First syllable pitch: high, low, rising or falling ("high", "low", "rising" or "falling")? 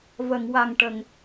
low